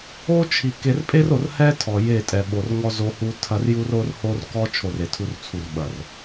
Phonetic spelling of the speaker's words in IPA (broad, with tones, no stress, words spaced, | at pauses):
o˦t͡ʃʰi˨ ke˨rpʼe˦ro˨r hɛ˦ tʰɔ˨je˦˨ tʼɛ˨ɓo˨rŋɔ˦ zo˦hu˦ tʰɐ˦r ju˦ro˦r ho˦r kɔ˦ t͡ʃʰo˦˨re˨tʰu˦rt͡sʰu˦˨r ɓɐ˨r